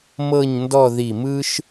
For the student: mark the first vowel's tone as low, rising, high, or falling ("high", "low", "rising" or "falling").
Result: falling